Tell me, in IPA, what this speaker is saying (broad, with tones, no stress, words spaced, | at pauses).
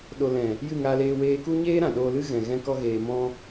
ɗo˧ lɛ̃˨ | jɨ˦˨ŋaː˧leː˧ weː˧ku˦ ɲeː˦ɾã˨ ɗoː˧lɨ˦ ɣɛ̃˨ ɣɛ̃˦kɔ˦ɣeː˧ mɔ̃˦